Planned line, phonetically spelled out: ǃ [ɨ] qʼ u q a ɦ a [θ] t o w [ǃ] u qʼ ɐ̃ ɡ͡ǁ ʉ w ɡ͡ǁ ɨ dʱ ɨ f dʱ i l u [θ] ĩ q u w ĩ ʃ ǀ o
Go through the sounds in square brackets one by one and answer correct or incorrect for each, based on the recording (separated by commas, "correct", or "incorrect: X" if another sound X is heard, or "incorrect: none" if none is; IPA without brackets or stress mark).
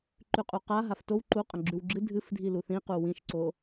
incorrect: ʉ, incorrect: f, correct, correct